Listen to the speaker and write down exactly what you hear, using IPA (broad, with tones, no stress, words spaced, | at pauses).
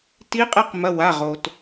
ti˧˥qʼe˧˥qmɐ˩˧˩ wa˩˧˩ʁo˩t